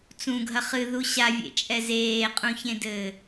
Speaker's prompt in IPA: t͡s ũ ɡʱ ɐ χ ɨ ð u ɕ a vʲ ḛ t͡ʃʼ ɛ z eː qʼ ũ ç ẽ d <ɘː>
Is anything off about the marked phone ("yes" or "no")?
no